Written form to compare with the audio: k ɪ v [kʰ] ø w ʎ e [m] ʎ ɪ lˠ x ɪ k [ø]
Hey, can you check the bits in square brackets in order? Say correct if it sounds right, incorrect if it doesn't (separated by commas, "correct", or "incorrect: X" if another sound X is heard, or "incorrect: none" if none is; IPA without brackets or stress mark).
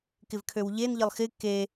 correct, incorrect: n, incorrect: e